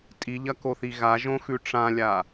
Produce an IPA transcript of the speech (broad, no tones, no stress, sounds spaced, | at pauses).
tʼ i ʎ ɐ k o θ i ɣ a ʒ õ x ʉ ʈ͡ʂ ã lʲ a